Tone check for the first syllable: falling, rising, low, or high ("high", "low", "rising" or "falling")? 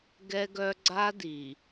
high